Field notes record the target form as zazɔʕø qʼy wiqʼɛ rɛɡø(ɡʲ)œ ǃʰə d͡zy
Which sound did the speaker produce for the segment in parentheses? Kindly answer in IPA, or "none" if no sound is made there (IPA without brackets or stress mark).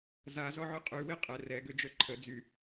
d͡ʒ